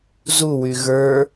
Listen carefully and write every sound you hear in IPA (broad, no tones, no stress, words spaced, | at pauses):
zuwy ɣə˞